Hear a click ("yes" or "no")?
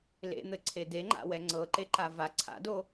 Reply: yes